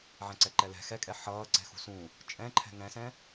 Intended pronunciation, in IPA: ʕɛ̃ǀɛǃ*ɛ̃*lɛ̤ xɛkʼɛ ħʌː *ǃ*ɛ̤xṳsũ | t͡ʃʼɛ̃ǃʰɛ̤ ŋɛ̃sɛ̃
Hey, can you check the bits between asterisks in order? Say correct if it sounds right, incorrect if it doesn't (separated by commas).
incorrect, incorrect